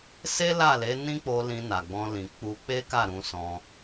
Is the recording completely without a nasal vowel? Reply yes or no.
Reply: no